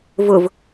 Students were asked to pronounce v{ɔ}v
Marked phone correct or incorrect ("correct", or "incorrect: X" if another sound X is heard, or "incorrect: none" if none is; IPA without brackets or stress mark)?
incorrect: ʊ